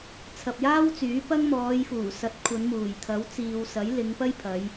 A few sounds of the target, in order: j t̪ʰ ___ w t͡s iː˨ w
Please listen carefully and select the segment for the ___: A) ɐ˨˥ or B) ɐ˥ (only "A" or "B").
A